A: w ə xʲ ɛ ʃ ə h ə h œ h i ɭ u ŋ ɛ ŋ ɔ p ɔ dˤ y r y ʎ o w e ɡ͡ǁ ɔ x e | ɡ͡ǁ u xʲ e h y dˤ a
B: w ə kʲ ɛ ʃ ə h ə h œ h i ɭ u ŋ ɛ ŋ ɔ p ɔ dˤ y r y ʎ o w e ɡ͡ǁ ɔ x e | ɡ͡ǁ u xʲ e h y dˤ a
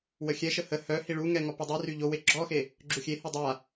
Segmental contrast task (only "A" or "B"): A